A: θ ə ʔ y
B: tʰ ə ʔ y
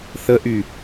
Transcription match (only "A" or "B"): A